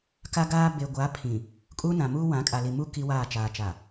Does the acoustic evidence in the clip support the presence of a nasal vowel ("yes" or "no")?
yes